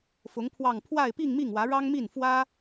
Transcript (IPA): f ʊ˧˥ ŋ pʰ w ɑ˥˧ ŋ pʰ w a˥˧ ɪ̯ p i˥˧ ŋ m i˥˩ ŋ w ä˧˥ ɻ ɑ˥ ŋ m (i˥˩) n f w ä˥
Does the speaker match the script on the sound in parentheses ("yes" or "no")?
yes